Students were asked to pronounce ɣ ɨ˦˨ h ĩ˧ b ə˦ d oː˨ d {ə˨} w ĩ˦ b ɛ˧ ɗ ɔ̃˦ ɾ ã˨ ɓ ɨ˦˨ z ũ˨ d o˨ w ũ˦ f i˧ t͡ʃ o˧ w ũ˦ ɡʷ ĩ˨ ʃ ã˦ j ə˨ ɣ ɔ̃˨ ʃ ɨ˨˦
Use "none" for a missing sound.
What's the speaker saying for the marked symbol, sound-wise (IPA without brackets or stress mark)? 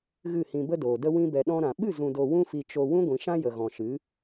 ə˦